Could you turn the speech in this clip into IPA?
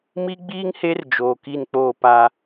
m i˦ ɡ͡b iː˦ ŋ h e˦ r d͡ʒ oː˨ k i˦˨ n k͡p oː˦˨ p a˦

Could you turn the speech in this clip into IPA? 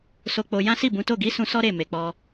s o˧ k͡p o˧ j ã˦ s i˦˨ b ũ˨˦ t o˦˨ ɡ i˨˦ s ũ˧ s ɔ˦ ɾ e˦˨ m e˨ k͡p ɔ˧

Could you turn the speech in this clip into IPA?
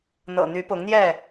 n̪ ɤ̰˨˩ n̪ y˨˦ p ʊ˨˦ ŋ n̪ j ɛ˥˨

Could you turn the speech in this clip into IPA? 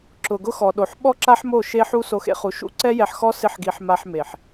ǁ ʊ˨ ɡ ʊ˧ x ɔ˨ ɗ o˨ ħ ɓ ɔ˦ ǁ a˦ ħ m o˦˨ ʃ e˧ ħ u˧ s o˧ x ḛ˧ χ u˨˦ ʃ ṵ˦ ǀ ɛ˦ j ɛ˧ ħ x ɔ˦ s ɪ˦ ħ ɡ i˧ ħ m a˧ ħ m e˨ ħ

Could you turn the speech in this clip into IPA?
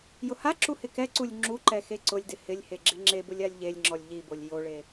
j ʊ h a ǁ u h ɪ k ɛ ǀ u lʲ ŋ͡ǁ u ǃ ɛ x e ǀ ʊ lʲ d ɪ h ɪ lʲ h e ɡ͡ǁ ɪ ŋ͡ǁ e b ʊ lʲ a lʲ ʎ e lʲ ŋ͡ǁ ɔ lʲ ʎ i b o lʲ j o ɭ e

